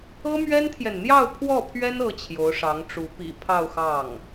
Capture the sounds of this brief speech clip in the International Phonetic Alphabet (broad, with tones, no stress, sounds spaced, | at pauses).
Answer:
ɤ˥ m ɥ ɛ˥ n t̪ʰ j ɛ˨ n n̪ j ɑ˥˧ ʊ̯ pʰ w ɔ˥˩ pʰ ɥ ɛ˥ n ɤ˥ t͡ɕʰ j o˧˥ ʊ̯ ʂ ɑ˧˥ ŋ ʈ͡ʂ u˧˥ p ḭ˨˩ pʰ ɑ˥˧ ʊ̯ x ɑ˥˩ ŋ